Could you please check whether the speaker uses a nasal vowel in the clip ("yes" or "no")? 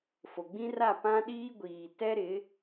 yes